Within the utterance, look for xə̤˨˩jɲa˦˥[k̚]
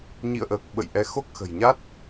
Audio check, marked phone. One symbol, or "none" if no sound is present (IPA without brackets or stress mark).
t̚